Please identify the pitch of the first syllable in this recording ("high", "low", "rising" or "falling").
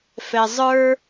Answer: low